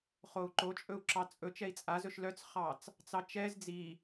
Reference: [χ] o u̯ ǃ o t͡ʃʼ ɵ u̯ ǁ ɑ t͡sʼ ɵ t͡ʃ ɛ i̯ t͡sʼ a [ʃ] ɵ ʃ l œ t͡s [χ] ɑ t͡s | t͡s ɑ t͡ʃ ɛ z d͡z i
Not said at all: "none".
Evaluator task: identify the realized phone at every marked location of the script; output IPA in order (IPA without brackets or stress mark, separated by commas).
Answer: χ, z, χ